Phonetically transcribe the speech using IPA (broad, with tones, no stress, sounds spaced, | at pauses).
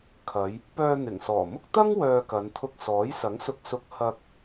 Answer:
kʰ ɐ˨˧ j | p œː˧ n̪ ɪ˨˩ ŋ s ɔː˨˩ m ʊ˥ k̚ t̪ ɐ˥ ŋ w œː˧ k ɐ˨˧ n t̪ʰ ʊ˧ k̚ s ɔː˨˥ j s ɐ˨˥ ŋ s ʊ˧ k̚ s ʊ˧ k̚ h ɐ˧ k̚